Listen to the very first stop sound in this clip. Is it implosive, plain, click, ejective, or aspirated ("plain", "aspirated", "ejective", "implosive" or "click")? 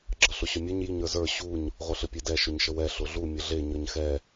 click